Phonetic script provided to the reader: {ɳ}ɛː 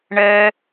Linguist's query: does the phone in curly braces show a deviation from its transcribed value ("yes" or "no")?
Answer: no